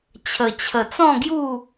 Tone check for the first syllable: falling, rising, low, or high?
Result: low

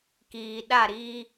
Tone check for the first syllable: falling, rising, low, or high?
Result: low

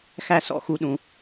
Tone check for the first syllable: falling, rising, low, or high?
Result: high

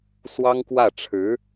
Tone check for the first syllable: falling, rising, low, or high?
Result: high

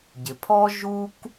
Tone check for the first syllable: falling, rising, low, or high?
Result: low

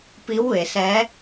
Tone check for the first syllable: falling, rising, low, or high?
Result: rising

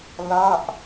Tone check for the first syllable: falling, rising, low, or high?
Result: falling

